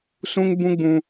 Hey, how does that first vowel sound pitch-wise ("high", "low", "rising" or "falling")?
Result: high